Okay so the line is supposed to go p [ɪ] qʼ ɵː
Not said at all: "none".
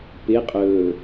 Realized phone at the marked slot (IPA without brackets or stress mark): ɪ